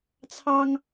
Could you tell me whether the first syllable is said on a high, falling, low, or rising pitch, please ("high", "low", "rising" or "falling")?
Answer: high